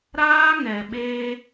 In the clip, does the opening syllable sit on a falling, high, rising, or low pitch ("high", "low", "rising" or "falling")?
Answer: high